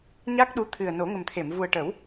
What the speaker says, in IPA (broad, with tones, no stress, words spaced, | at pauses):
ɲa˦˥k̚ɗu˧˥ t̪ʰɨ˨˩ə̯no˨˩˦ŋə˨˩mt̪ʰe˨˩˨m vu˨˩ə̯ʈə˨˩˦w